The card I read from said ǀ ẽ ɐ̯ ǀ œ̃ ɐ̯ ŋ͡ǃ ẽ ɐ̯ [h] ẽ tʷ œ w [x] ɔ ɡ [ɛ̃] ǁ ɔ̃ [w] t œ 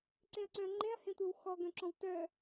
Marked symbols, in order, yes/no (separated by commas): yes, yes, no, yes